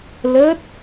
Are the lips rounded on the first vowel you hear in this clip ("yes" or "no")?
no